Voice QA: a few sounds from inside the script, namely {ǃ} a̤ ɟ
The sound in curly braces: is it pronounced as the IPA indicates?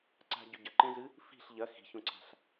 no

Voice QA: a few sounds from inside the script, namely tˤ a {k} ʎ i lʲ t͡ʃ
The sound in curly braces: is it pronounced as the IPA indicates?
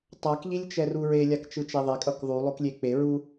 yes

